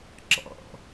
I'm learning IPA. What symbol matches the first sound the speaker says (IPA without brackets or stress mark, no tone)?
ǁ